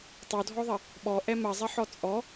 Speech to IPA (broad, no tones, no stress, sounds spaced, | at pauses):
tˤ o dʱ ɔ ðˤ ɐ | ɓ ɔ ʔ ɛ m ɐ zˤ ɐ ħ ɔ t͡sʼ ɔ